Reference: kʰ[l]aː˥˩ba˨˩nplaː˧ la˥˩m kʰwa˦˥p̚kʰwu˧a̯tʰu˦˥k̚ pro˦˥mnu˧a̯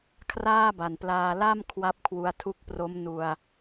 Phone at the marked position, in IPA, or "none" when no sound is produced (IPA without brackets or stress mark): r